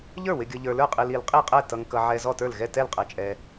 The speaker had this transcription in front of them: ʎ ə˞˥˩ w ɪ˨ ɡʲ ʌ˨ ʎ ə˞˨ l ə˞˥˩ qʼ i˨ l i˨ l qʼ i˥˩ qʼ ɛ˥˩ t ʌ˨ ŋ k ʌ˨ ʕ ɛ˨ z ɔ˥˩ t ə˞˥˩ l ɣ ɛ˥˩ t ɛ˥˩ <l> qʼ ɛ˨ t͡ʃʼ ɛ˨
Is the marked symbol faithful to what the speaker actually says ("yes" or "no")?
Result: yes